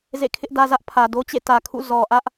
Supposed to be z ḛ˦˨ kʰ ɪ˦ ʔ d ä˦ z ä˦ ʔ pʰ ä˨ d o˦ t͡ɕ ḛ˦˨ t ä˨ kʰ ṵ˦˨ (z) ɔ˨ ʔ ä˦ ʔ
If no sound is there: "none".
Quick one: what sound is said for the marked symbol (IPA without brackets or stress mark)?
z